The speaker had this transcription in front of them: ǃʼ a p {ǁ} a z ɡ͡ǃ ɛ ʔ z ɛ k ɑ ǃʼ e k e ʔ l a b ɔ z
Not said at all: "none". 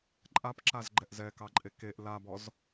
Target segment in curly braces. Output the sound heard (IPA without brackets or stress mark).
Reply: ǁ